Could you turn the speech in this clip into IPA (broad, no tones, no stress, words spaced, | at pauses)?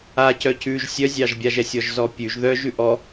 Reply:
acœ cʉʒ sʲœzʲɑʒbʲaʒ ɛsʲɔʒzɔpʲʉʒ ðœʒ ʉʔɔ